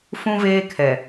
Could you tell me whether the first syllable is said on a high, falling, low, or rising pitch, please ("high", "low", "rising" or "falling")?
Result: high